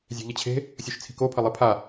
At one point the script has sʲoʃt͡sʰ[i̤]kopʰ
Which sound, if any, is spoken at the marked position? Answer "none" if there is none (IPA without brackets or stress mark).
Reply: i̤